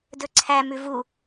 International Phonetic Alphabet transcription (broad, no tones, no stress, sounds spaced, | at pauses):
d ɵ ǀʰ æ m ʉ v u